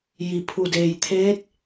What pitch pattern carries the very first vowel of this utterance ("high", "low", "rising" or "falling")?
low